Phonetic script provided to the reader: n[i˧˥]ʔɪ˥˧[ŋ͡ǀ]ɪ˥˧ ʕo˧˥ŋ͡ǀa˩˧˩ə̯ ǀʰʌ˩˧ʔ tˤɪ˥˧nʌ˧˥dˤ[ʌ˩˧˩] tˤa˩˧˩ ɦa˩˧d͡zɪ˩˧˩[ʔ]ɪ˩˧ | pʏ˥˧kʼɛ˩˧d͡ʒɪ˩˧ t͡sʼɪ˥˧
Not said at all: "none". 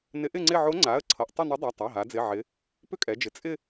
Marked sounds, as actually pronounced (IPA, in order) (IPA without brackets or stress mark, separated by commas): ɪ˧˥, ŋ͡ǀ, a˩˧˩, ʕ